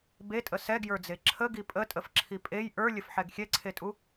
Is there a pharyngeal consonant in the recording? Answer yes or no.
yes